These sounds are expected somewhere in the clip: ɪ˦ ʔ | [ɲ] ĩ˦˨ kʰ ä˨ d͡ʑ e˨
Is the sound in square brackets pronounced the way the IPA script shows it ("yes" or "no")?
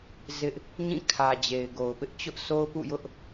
yes